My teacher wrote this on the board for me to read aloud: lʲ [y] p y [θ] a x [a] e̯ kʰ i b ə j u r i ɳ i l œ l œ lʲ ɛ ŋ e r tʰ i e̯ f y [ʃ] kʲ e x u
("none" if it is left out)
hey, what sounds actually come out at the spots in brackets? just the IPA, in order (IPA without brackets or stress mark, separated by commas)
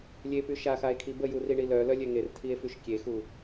e, ʃ, a, ʃ